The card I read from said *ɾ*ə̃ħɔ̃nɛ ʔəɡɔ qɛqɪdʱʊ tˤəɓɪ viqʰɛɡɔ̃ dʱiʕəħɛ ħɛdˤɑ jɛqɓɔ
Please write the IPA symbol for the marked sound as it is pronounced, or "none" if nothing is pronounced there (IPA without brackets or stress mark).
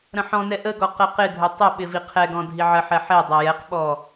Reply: ɾ